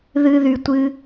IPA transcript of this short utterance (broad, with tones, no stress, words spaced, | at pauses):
ðɨ˦ðy˧tʷɨ˦